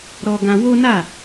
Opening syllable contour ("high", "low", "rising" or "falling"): high